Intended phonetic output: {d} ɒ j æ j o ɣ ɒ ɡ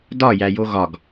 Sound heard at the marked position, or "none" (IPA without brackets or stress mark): d